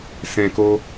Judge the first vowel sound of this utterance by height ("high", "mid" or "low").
mid